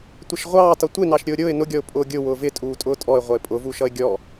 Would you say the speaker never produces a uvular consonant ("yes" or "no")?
no